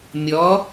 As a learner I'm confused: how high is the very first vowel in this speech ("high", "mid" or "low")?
mid